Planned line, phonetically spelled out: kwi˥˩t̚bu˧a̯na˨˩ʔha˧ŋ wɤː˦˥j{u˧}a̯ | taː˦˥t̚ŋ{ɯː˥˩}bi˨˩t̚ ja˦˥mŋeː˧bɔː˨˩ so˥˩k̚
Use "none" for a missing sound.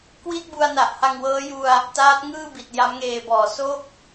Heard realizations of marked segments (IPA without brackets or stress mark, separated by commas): u˧, ɯː˥˩